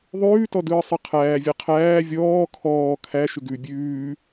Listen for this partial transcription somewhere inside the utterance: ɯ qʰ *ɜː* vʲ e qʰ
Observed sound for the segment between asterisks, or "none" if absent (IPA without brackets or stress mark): æː